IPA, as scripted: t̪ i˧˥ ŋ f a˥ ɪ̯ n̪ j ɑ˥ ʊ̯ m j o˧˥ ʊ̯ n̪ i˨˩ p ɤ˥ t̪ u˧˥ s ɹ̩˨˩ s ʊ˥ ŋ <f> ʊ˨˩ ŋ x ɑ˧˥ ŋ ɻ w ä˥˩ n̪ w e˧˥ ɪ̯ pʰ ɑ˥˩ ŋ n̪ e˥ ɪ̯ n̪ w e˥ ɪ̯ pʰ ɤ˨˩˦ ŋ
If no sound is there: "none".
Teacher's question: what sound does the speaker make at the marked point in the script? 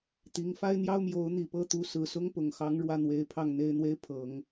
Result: p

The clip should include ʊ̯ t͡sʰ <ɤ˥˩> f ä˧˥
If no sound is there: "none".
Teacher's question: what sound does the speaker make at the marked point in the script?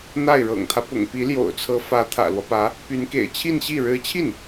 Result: ɤ˧˥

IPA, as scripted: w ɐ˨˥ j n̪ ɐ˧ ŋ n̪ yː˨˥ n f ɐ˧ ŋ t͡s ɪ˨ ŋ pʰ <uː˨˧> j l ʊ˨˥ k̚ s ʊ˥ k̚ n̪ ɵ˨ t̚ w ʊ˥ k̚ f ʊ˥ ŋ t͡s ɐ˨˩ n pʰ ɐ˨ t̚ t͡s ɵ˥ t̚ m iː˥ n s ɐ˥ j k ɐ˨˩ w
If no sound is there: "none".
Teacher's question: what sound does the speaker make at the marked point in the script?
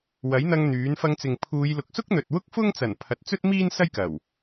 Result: uː˨˧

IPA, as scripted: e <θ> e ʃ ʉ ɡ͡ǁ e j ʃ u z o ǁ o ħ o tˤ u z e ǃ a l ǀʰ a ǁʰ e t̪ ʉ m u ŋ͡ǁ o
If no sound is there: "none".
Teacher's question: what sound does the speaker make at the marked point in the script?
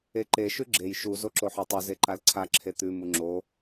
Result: ǃ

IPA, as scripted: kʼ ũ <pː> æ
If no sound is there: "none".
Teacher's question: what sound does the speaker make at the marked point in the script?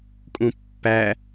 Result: pː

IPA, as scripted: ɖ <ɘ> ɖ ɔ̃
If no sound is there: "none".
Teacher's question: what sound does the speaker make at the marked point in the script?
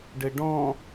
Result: ɘ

